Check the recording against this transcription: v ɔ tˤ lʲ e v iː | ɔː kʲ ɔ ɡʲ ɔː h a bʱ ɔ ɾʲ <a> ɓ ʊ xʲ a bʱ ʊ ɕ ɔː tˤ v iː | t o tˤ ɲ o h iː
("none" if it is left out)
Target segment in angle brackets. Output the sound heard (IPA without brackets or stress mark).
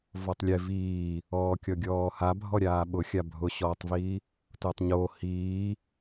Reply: aː